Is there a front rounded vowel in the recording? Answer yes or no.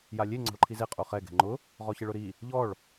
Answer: no